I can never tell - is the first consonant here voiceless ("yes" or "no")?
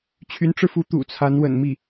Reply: yes